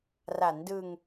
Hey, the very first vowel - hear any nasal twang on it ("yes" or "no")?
no